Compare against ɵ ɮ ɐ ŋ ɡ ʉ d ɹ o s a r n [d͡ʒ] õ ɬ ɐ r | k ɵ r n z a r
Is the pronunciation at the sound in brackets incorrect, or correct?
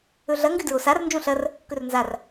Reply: correct